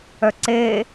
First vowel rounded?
yes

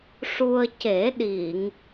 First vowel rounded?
yes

